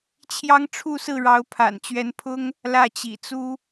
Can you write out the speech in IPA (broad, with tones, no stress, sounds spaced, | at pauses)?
t͡ɕʰ j ɑ˥ ŋ ʈ͡ʂʰ u˥˧ s ɹ̩˥˩ ɻ ɑ˧˥ ʊ̯ pʰ a̰˨˩ n t͡ɕ ɥ ɛ˧˥ n pʰ ʊ˥ ŋ | l ä˥˩ t͡ɕ ḭ˨˩ t͡s u˥